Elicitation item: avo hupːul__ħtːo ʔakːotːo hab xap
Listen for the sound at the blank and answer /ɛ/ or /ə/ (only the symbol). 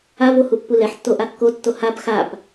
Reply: ɛ